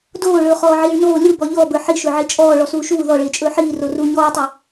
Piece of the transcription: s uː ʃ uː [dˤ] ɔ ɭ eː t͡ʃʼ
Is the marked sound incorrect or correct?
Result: incorrect